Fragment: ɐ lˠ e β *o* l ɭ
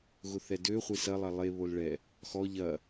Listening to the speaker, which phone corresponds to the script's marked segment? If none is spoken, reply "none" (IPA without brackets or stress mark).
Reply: o